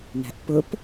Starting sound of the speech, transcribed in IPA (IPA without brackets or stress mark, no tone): n